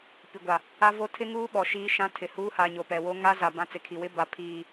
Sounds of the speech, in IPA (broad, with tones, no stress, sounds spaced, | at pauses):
p i˨ ɡʷ a˨ | a˦ v o˦ tʰ ɪ˦ ŋ uː˦ ɓ ɔ˨ ʃ iː˦ ʃ ã˦ tʰ ɪ˨ h uː˦ h a˨ ɲ o˨ p ɛ˨ w o˦ ŋ a˦ z a˨ b ã˦ t͡s ɪ˨ kʰ i˨ w ɪ˦ b a˨ pʰ iː˨